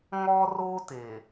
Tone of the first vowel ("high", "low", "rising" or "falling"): high